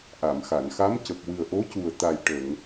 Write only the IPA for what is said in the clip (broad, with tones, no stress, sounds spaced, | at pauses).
ʔ a˨˩˨ m x a˨˩˨ n x a˧˥ m c ə˨˩ k̚ w ɨ˨˩ ə̯ ʔ o˧˥ c u˨˩ ə̯ t̪ a˨˩ j ʈ ə˨˩˨ ŋ